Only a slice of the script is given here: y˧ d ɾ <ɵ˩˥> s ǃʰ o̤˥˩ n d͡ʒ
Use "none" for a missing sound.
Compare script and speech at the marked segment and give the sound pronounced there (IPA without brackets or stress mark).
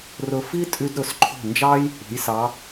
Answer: ɵ˩˥